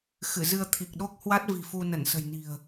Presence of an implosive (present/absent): present